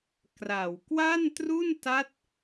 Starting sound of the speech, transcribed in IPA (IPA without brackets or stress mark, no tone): k